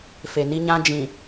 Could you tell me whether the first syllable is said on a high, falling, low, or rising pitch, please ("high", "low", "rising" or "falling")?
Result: low